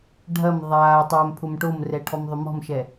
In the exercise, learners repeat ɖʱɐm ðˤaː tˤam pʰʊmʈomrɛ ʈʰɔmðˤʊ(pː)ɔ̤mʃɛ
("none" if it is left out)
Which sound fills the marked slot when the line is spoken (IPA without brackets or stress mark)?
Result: m